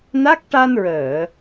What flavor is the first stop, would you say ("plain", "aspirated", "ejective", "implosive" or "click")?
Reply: plain